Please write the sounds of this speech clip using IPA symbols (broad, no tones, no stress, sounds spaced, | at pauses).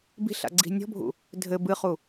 b i̤ ɬ a̰ ɡ͡ǀ i̤ nʲ ɔ̤ bʱ ṵ | dʱ ɘ b ɨ χ u